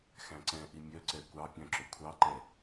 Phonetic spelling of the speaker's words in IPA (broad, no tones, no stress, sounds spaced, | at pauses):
x æ̃ ǀ ɛ̃ ʔ i mʲ œ ǀ ɛ kʷ ɑ pʲ œ̃ ǁ ɵ kʷʰ ɑ ǃ ɛ